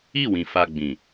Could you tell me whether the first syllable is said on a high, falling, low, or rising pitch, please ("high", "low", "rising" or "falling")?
falling